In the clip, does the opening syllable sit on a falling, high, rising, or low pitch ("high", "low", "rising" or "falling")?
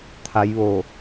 rising